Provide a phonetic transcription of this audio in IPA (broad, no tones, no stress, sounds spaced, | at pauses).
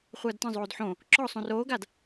χʷ ɐː d t ɐ̃ zˤ oː d ħ õ | ǁ ɔ sˤ õ r oː ɡ a d